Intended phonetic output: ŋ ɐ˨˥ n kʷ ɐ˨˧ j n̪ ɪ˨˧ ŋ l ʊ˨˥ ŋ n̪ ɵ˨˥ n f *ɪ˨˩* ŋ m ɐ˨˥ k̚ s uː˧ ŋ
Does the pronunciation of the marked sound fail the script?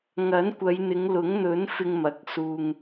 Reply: yes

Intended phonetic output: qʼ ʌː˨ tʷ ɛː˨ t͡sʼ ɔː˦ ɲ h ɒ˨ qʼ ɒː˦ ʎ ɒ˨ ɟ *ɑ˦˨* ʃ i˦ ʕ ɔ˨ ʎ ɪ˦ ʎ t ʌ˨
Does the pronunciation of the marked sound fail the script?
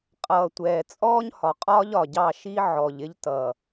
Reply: no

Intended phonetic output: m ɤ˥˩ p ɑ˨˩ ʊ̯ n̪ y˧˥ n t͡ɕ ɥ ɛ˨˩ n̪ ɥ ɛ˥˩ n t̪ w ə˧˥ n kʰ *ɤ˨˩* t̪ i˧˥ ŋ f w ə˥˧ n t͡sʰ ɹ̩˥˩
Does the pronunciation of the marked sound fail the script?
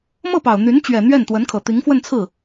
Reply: no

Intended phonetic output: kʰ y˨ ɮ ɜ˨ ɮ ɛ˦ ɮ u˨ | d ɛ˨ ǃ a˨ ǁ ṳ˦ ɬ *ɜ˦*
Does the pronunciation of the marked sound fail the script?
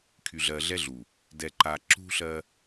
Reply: no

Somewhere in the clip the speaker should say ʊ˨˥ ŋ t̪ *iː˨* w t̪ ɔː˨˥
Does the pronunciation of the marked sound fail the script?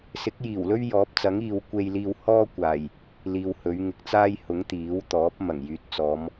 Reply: yes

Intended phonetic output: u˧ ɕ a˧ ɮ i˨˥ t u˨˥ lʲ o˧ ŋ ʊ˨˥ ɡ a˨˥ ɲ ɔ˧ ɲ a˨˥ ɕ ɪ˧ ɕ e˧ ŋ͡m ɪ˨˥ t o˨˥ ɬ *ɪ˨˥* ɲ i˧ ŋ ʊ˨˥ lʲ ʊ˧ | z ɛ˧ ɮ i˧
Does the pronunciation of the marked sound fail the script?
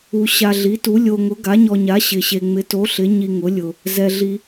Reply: no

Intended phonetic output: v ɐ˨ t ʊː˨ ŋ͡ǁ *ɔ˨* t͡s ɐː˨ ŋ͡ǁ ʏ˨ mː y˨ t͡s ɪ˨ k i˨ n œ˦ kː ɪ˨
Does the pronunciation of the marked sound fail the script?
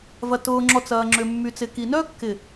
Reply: no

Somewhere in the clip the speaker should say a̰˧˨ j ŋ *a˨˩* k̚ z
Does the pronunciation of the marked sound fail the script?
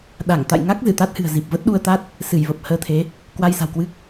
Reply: yes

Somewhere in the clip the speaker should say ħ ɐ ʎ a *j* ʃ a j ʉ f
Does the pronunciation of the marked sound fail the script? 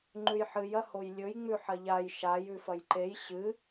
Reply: no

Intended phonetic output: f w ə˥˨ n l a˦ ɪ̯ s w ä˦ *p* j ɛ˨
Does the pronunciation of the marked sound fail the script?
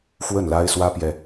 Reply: no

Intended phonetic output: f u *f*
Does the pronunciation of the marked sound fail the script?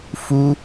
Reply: yes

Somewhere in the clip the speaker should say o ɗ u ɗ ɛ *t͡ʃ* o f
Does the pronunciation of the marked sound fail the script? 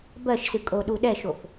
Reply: yes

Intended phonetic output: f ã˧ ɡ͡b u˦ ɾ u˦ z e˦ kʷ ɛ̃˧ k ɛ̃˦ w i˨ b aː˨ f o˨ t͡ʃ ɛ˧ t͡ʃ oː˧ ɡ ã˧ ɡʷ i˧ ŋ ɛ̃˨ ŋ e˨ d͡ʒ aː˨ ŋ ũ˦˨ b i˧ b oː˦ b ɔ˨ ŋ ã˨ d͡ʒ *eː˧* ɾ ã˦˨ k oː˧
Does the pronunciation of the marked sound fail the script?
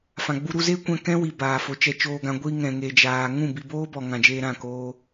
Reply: no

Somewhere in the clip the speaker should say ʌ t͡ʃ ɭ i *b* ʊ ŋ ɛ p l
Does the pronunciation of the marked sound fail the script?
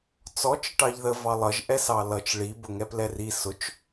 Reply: no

